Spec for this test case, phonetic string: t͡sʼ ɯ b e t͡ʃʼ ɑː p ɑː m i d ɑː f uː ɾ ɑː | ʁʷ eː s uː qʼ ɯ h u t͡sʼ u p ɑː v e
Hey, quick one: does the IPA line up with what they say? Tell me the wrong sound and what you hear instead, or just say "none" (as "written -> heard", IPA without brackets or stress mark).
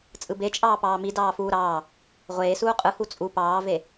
none